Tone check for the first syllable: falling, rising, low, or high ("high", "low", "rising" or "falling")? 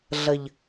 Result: low